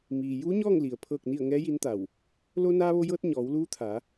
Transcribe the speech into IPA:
m iː˩ j uː˧˥ ɲ ɔː˥˨ ŋ l i˩ ə̯ pʰ ɤː˥˨ k̚ n i˥˨ ə̯ ŋ ɛː˧˥ j i˧˥ n t̪ a˧˩ w | l o˧ n aː˧ ʋ o˧ j ɤː˧ t̚ ɲ ɔː˩˧ w l uː˧˥ t̪ʰ a˩˧

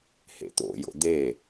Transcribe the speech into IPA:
h ḛ t̪ o̰ j o̰ d̪ e

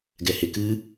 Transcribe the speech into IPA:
ɡ ɛ h e k ɨ

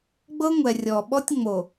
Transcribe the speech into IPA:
ɡ͡b ɤ˦ ŋʷ ɛ˨ rʲ ɔ˨ ɓ ɔ˦ tʲ ŋ͡m o˨

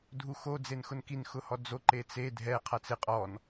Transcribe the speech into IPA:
dʱ u x o d͡z e n x ʊ n k i n x ʊ h ɔ d͡z o ǃ e t͡s e dʱ ɛ qʰ a t͡s ɪ qʼ ɔ n

